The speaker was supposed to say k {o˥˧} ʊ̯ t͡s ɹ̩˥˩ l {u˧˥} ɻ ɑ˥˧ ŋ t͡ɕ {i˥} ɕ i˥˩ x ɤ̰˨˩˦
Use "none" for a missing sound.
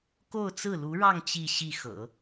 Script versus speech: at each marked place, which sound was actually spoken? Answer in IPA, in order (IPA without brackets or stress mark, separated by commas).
o˥˧, u˧˥, i˥˧